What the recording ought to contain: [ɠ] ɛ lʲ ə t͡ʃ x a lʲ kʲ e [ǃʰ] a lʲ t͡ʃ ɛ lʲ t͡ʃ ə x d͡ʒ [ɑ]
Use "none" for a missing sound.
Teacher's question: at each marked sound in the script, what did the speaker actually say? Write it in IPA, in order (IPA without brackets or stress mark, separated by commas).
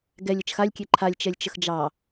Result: ɡ, ǃʰ, ɑ